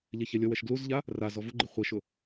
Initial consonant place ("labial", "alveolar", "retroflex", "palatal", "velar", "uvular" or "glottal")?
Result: palatal